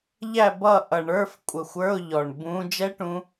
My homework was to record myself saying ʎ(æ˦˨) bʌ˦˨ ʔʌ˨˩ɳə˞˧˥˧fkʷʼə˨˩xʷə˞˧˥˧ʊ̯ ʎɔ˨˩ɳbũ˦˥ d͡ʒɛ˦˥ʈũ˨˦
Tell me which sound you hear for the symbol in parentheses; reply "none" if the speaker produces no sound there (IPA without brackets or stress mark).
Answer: æ˦˨